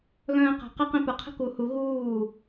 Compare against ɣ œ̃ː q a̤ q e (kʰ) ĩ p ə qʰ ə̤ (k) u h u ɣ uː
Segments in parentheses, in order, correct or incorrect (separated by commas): incorrect, correct